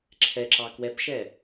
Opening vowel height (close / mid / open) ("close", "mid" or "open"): mid